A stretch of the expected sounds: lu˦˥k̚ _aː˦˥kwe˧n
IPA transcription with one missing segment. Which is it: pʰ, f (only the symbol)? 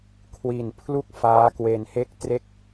f